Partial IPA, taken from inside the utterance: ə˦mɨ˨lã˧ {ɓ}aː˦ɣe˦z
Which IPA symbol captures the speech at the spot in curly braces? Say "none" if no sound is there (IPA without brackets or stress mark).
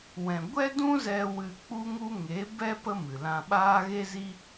ɓ